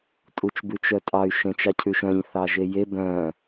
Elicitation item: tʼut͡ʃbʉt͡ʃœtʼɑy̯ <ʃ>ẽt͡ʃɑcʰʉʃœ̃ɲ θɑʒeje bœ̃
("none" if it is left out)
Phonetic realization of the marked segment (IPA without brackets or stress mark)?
ʃ